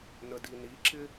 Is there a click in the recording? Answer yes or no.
yes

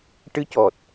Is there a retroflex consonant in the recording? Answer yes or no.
yes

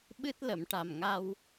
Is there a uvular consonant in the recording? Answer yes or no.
no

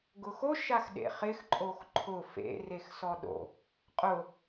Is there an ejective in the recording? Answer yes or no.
yes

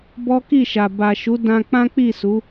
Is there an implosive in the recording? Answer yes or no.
no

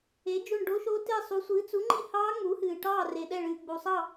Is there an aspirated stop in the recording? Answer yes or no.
no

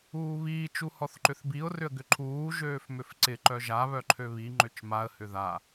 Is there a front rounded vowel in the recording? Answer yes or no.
yes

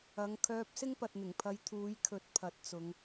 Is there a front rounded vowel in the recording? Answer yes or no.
yes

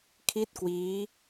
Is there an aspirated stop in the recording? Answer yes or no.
yes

